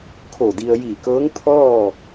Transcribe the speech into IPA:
kʰ o˧˩ d i˧ ə̯ j iː˧˩ k ɤː˧˥ ŋ t̪ʰ ɔː˥˨

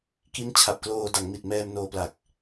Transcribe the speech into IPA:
k i˦˥ n t͡ɕʰ a˨˩ p̚ k l oː˧ d a˩˦ ŋ m i˨˩ t̚ m ɛː˧ m n oː˧ p l a˨˩ k̚

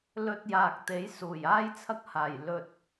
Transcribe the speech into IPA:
l ɵ˧ t̚ j aː˨ k̚ t̪ e˨˥ j s uː˨˩ j aː˥ j t͡sʰ ɐ˥ k̚ h aː˨˩ j l ɵ˧ t̚

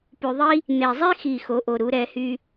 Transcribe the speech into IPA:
p y˨ ðˤ i˥ | n̪ e˨ zˤ e˥ x i˨ x o˩˥ ʔ o˨ ɾ u˩˥ ɾ ɛ˩˥ h y˥

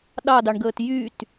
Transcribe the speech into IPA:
ɗ ɑ d ɑ ɳ ɡ əː t j y t

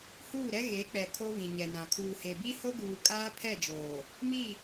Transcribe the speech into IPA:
h uː˦˨ ɾ ɛ˦ ɣ e˨˦ k͡p ɛ˨ kʰ o˦ β ĩ˨ ɲ ɛ˨ n ã˨ kʰ uː˨ h e˨ b i˦ h o˦ ɡ uː˨ kʼ aː˦ pʰ ɛ˦˨ d͡ʒ oː˨ | m i˦˨

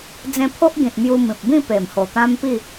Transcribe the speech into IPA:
d͡z ẽ˧ pʰ o˦ ʔ ɡ ĩ˨ t̚ m j u˧ m ĩ˨ p̚ b ĩ˥˧ p e˨˩ m h o˨˩ t̪ ã˦ m p i˥˧

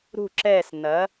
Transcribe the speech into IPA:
ɾ ṳ˦˨ ǁ ɛː˦˨ s n ɐː˨˥

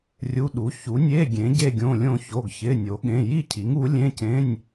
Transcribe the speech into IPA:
rʲ u˧˥˧ ɗ u˨˥ ç u˨˥ nʲ e˧˥˧ ɡʲ ẽ˨˥ ɟ e˥˧ ɡʲ õ˧˥˧ lʲ õ˥˧ ç o˧˥˧ ɡ ç ɪ˧˥˧ nʲ o˨˥ ɠ ẽ˧˥˧ j i˥˧ cʰ i˨˥ ŋ u˨˥ lʲ ẽ˧˥˧ c ẽ˧˥˧ nʲ

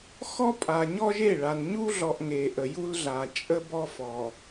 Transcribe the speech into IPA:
x ɔ˦ pʼ a˨ ɲ ɔ˦ ʒ e˦˨ ɭ a˨ n ɲ u˦ ɮ ɔ˨ ʔ ŋ e˨ ʔ ə˨ j u˦ l ɮ a˨ t͡ʃʼ ə˦ b ɔ˦ f ɔ˨

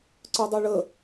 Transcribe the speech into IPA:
ǀ œ dˤ o ɭ ə

